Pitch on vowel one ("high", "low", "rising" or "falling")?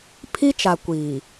high